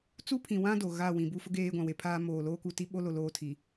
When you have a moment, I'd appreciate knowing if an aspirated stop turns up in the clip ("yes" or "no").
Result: yes